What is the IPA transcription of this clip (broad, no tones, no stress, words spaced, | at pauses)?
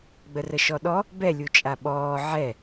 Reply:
ɡ͡bərəʃɔɗɔ | bɛ lʲut͡ʃʼaɓɔː ʕɛ